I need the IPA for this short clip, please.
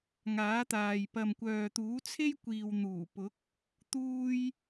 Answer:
ŋaː˨˥t̪aː˨j pɐ˨mkʷœː˨t̪uː˨˥ t͡sʰe˥j kʷiː˨wn̪uː˨˩ pʊ˨˥k̚ | t̪uː˥j

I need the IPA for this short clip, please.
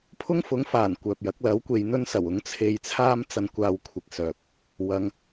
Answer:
pʰʊ˥ŋfʊ˨˥ŋfaː˨˩n kʷœː˨p̚jɐ˨˥k̚lɐ˨˥w kʷe˨˧jn̪ɵ˥nsɐ˨˩w ʊ˨˥ŋt͡sʰe˧jt͡sʰaː˥m t͡sɐ˧nkʷaː˧w kʷʰɪ˧k̚sœː˧k̚ | wɐ˨˧ŋ

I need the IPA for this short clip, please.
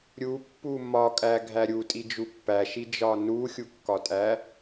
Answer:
ɾʲupːu mɒkʼæɡʱæ ɾʲutʼid͡ʒu pːæʃid͡ʒɒ nuxʲukːɒtʼæ

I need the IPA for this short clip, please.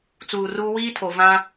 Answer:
t͡suː˨ruː˦ wiː˦tʰo˨vã˦

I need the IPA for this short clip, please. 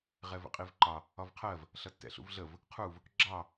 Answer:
ʁɛvə̰qʼivǃɑ | ɒvqʰɜv | ɬʌtːɛ̰ɬṵvɮəv | qʰuv | ɡ͡ǁɑ

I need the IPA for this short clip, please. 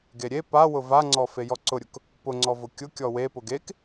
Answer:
ɡeɾʲe pawʊ vaŋ͡ǀɔ fejɔǀʊɾʲʊk | pʊŋ͡ǀɔvʊ kʲʊkʲɔ wepʊɡ ek

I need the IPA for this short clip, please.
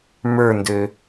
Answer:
mə˞ndø

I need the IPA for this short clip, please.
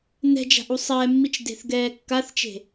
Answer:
nɛ̤d͡ʒa̤ʔ usˤɛːmːit͡ʃ de̤θɡɛːkːaθt͡ʃe̤

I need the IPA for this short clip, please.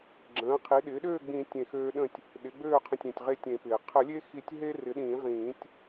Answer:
ɡ͡ǁə̃ː˩˥ qʰi˩˥ɗɪː˩˥ɗøː˥˨ ɡ͡bĩ˨˩˦ tʲẽ˧˩xøː˦ɗə̃˥˨tʲ | ɗɪ˩˥ɡ͡bøː˥˨qʰə̃˧˩tʲ ẽ˩tʲʁe˧˩tʲ ẽ˨˩˦pɪː˩ qʰə˨˩˦lʲe˦ xi˨˩˦tʲɦe˦rɪ˩˥ ɗĩː˨˩˦ʁĩː˨˩˦tʲ

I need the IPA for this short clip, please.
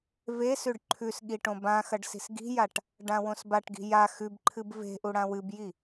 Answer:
vesʉɖ ǃʰʉsɠi ʈõbãxɐɖ si̤sɡi̤jaʈ | ɖãwõsbaʈɡi̤ ja xʉbǃʰɨb ve̤ʔu ɽãwɨbji

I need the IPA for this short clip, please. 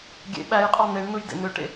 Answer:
ɡʲḛ ɓæjqʼɑ n̪eɳn̪ɯj dḛn̪øʈḛ

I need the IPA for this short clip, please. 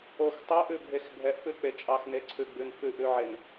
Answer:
ox tˤɛʔʉbʱex bʱɛʔfʉk͡pe t͡ʃʼɑxneǀʰʉɡ͡bʉn fʉʔʉʕen

